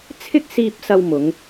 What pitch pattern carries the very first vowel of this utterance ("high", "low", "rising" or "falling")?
high